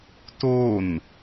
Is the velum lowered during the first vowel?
no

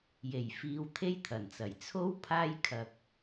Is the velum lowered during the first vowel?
no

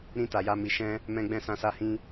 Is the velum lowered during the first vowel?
yes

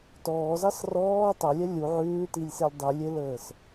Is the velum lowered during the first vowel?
no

